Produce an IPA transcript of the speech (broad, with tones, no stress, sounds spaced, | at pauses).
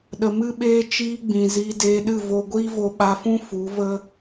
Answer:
ɗ ə˨ m ɨ˦ ɓ eː˦ t͡ʃ iː˦ ɡ͡b ĩ˨ z iː˧ d eː˧ ɗ ɨ˦˨ v o˦ ɡʷ iː˦ v o˧ ɓ a˧ f ũ˦ f u˨˦ v ə˦